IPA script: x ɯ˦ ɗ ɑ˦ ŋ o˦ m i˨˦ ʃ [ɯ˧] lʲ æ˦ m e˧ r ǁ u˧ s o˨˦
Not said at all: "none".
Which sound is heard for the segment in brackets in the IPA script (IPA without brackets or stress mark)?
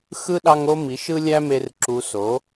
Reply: ɯ˦